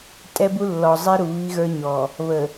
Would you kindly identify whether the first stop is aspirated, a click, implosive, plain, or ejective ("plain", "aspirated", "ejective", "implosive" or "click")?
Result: ejective